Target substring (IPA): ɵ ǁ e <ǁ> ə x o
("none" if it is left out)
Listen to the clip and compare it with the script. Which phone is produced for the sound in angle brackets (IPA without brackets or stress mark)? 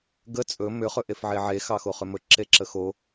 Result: ǁ